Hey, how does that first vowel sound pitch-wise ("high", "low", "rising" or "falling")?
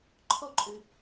high